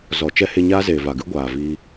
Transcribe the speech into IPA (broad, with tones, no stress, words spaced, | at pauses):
zɔ˨t͡ʃɛ˦he˧ ɲaː˦zeː˨va˨ɡɨ˦ ɡʷaː˨viː˧